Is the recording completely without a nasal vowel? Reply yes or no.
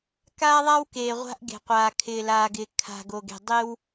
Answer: yes